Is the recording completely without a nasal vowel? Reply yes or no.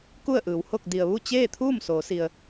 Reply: yes